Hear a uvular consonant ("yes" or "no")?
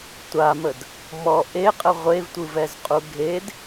yes